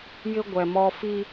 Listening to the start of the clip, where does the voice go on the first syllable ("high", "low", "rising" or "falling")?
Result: high